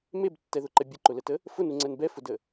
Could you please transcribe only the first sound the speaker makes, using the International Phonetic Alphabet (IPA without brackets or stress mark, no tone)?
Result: m